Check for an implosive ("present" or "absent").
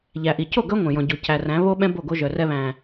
present